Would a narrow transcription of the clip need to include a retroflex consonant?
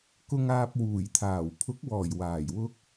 no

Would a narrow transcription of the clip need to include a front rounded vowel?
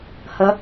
no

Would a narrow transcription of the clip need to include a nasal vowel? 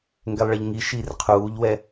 no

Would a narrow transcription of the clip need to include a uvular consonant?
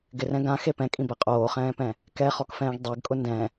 yes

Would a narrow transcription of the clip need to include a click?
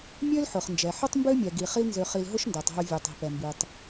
no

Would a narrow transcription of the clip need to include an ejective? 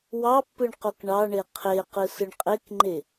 yes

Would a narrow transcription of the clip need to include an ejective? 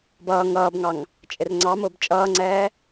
yes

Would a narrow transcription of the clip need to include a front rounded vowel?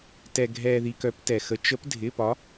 yes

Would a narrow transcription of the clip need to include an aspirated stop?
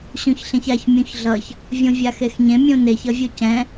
no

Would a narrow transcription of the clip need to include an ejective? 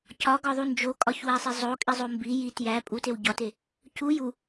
yes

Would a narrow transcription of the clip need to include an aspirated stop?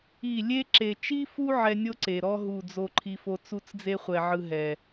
yes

